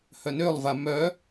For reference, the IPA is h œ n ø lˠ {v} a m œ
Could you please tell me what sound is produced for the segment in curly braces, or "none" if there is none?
v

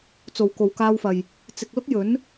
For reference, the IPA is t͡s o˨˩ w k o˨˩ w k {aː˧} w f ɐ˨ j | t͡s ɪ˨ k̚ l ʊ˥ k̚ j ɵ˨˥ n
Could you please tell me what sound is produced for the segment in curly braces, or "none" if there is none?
aː˧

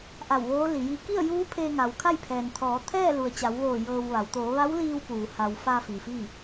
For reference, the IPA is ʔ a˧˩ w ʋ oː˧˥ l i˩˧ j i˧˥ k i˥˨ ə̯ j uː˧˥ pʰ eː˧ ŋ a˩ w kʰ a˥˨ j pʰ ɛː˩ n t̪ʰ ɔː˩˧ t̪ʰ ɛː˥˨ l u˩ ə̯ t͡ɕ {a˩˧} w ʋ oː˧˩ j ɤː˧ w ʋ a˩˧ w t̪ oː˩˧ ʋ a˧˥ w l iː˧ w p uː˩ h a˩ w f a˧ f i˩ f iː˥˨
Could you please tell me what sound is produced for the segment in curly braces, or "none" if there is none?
a˩˧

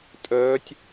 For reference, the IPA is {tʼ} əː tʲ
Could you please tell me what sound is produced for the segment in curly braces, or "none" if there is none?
tʼ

